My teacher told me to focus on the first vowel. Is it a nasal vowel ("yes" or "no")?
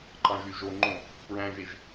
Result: yes